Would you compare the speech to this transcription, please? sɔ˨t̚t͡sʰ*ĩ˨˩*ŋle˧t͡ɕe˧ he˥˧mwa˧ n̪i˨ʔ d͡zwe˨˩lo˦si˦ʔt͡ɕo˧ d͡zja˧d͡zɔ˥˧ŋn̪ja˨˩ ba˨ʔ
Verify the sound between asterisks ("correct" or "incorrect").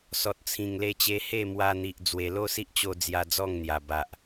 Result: correct